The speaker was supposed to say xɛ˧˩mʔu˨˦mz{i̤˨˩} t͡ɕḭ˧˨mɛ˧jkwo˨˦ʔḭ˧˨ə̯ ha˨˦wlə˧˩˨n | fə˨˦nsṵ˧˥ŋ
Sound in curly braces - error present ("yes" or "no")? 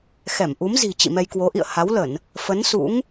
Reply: no